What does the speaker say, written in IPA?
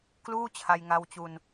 k l uː˥˩ t͡ɕʰ a˧ j ŋ a˧ w t͡ɕ u˧ n

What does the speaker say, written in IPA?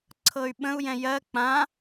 ǀʰ ɤ y̯ ɓ ə̃ u̯ j ɛ̃ j ɜ k͡p ã

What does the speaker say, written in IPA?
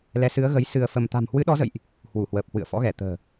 l ɛ˨˦ s ɨ˨˦ ə̯ ɣ ə˨˦ j s ɨ˧ ə̯ f ə˧ m t̪ a̤˨˩ m h w ɨ˨˦ ɗ ɔ˨˦ z ə̰˧˨ j ʔ | h w u˧˩ h w əː˨˩ p̚ h w ɨ̰˧˨ ə̯ f ɔ̰˧˥ ɣ ɛ˧˩ t̪ ə̤ː˨˩

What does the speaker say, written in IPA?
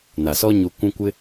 n a˨ s ɔ˦ ɲ u˨ kʷ ũ˦ kʷ ɪ˦

